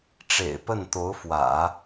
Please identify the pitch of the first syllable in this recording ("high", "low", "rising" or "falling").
low